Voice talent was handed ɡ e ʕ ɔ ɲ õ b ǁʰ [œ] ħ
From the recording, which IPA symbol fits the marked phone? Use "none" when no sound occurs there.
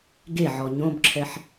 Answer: ɛ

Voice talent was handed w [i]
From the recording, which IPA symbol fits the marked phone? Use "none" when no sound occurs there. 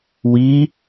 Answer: i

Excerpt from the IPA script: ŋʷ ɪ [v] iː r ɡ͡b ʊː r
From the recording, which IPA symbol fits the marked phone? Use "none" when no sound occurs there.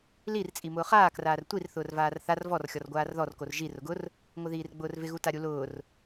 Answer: ð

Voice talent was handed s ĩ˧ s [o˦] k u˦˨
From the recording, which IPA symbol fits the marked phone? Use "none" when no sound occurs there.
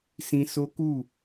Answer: o˦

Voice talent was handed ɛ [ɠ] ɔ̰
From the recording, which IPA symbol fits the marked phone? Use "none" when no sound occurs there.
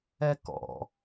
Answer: k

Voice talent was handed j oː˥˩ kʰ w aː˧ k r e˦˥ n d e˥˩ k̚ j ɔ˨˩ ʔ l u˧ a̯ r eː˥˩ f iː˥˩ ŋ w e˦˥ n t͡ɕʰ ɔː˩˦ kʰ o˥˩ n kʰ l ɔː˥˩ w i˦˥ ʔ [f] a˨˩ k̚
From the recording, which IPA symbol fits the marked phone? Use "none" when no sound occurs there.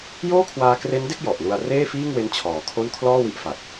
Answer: f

